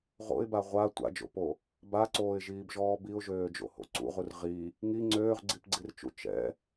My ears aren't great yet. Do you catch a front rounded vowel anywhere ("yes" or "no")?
yes